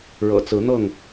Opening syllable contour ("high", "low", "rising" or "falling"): low